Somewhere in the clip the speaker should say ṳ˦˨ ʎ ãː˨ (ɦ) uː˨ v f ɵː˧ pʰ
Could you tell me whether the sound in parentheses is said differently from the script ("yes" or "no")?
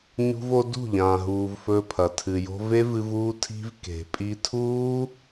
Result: no